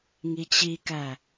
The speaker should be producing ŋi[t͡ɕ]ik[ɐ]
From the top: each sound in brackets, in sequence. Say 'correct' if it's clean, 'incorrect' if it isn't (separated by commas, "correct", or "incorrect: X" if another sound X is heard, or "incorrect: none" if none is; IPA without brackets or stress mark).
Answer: correct, incorrect: æ